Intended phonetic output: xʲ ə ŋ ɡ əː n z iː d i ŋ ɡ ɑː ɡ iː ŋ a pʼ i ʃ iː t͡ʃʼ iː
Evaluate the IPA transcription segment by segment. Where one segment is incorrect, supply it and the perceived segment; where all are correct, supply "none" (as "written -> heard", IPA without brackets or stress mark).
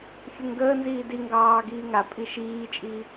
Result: none